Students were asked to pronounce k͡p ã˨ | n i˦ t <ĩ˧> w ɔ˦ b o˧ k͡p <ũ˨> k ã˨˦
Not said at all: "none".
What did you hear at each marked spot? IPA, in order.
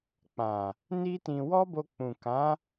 ĩ˧, ũ˨

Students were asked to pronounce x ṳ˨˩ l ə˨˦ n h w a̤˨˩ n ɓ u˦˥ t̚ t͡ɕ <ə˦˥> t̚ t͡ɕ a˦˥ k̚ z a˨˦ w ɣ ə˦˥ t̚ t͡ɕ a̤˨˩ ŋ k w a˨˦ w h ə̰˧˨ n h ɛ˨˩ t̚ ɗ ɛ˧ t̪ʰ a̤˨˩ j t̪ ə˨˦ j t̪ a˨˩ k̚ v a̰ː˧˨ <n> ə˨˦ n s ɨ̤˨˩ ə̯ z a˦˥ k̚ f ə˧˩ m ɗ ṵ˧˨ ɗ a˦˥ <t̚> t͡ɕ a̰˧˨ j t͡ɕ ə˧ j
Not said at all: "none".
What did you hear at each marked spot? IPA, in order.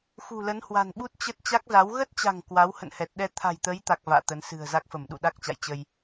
ə˦˥, t̪, k̚

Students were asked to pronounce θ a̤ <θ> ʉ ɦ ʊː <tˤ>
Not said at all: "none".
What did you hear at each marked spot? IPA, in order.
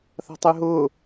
tˤ, none

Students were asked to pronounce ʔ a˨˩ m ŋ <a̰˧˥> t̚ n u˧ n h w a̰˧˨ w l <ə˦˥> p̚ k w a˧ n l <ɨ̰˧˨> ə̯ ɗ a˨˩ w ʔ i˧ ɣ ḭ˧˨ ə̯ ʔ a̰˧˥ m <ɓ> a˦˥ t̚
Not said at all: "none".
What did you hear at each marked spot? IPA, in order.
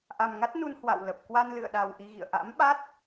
a˦˥, ə˨˩, ɨ̰˧˨, ɓ

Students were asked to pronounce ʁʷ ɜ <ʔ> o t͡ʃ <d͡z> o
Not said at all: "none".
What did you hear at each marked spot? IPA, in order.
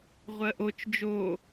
ʔ, d͡ʒ

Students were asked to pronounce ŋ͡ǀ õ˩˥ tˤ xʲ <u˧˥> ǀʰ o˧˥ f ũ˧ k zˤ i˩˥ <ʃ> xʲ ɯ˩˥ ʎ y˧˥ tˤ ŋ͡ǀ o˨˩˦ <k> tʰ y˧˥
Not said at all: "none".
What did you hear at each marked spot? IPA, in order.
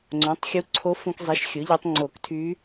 u˧˥, ʃ, k

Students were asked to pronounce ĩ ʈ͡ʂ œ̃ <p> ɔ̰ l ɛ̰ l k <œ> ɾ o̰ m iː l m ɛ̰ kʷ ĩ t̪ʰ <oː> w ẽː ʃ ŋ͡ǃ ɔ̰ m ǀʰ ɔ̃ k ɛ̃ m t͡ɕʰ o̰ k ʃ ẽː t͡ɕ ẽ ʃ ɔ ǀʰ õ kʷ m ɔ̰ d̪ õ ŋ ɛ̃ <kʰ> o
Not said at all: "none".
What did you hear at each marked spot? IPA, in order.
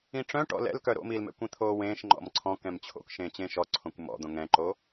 ʈ, œ, oː, ǃ

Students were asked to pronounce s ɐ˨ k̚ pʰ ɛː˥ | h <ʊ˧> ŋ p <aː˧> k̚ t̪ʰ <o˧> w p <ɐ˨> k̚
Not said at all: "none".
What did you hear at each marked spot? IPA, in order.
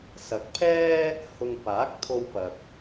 ʊ˧, aː˨˥, o˧, ɐ˨

